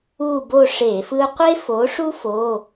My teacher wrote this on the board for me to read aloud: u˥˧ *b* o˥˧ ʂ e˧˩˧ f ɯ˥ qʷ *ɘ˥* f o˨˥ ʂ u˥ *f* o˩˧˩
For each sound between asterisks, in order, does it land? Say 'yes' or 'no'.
yes, no, yes

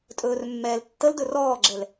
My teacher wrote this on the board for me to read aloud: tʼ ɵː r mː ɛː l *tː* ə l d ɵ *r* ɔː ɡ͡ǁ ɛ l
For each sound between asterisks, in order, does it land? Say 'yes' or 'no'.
yes, yes

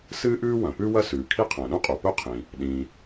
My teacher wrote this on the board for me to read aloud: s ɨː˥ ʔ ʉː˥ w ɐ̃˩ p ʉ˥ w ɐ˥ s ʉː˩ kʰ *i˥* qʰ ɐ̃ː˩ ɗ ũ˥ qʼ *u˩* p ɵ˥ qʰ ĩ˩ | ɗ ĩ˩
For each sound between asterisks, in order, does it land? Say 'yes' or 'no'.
yes, yes

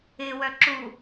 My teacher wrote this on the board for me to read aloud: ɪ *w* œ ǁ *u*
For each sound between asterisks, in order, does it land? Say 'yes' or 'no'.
yes, yes

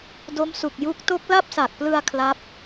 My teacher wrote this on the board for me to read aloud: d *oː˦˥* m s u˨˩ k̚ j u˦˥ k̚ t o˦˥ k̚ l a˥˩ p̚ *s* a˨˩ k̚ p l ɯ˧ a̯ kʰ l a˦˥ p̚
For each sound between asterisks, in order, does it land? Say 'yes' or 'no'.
no, yes

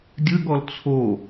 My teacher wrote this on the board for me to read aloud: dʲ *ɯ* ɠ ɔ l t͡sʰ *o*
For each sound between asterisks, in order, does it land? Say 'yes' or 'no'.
yes, yes

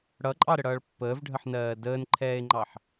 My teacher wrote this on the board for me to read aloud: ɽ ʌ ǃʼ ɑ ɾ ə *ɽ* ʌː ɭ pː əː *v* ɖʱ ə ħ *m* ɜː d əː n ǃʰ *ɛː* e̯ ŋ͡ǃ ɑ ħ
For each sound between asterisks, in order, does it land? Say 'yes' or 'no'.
yes, yes, no, yes

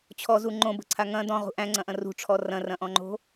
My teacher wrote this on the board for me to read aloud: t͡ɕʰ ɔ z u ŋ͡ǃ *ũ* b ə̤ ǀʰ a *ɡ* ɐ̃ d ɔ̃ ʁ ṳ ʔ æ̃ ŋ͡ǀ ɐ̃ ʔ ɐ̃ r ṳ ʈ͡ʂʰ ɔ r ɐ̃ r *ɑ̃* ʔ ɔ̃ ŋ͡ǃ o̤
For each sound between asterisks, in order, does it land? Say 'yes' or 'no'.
no, no, no

